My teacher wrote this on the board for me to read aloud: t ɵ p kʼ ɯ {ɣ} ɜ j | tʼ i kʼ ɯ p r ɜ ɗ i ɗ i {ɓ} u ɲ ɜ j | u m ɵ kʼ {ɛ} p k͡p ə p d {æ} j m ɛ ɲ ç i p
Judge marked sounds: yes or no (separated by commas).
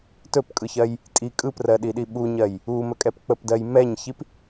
no, yes, yes, no